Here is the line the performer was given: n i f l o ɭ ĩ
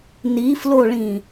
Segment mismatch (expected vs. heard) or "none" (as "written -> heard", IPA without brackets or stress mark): none